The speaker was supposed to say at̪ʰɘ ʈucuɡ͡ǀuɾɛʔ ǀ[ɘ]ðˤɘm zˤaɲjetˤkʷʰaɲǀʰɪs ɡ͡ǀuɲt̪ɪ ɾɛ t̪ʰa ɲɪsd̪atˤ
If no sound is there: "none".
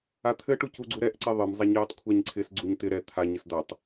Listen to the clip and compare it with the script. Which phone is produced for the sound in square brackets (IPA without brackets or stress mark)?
e